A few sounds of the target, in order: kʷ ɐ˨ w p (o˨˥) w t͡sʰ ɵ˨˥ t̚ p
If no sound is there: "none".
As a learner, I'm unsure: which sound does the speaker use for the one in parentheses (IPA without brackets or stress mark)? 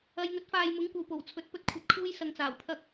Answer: o˨˩